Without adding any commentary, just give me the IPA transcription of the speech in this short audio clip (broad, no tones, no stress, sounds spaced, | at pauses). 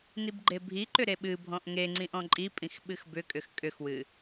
n i b ɡ͡ǃ e bʱ i ǃ ʏ ɾ e ɓ ɨ bʱ ɔ̃ ʔ ŋ e ŋ͡ǀ ĩ ʔ ɔ̃ ǃʼ i pʼ ĩ x ɓ ɨ x b ʏ kʼ ʏ x kʼ ʏ x w ɨ